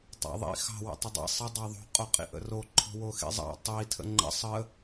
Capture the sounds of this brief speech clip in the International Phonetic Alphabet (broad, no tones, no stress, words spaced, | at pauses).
tˤɑ̰ðˤḭ xɑ̤ wə̰tˤədˤḭ sˤə dˤɑðˤo̤ qʼoqʼḭʔə̰ro ǃʰo̤woxḭzˤɑ̰ tˤi tʰə̰ŋ͡ǃə̰ sˤə